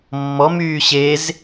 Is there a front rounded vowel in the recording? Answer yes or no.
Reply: yes